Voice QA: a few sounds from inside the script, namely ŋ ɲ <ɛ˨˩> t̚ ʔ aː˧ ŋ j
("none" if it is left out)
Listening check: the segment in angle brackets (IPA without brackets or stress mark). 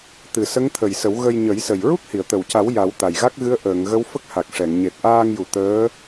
e˨˩